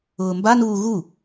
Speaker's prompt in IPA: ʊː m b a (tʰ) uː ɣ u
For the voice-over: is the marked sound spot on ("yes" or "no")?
no